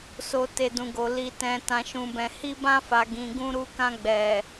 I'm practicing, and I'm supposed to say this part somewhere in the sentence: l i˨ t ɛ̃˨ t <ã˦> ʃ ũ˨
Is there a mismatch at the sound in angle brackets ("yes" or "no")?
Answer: yes